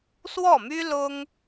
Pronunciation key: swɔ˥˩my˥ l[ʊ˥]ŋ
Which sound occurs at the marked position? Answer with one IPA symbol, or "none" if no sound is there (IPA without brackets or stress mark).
ʊ˥